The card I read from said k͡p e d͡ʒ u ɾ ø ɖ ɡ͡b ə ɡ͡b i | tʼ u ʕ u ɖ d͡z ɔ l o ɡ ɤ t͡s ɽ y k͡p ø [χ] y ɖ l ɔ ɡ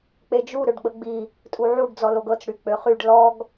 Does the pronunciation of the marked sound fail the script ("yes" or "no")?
no